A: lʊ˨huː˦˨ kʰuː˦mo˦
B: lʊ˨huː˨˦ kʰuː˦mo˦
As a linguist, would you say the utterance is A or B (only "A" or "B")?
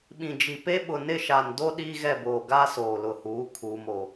B